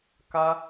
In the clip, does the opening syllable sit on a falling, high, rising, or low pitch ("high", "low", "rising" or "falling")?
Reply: high